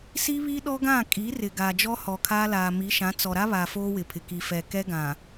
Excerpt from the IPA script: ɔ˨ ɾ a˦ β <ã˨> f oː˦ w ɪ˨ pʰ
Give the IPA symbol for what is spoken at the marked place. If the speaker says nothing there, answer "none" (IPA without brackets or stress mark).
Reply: a˨